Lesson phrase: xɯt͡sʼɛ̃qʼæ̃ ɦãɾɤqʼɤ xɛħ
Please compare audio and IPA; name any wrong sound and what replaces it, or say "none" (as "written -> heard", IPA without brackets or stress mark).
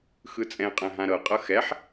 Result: none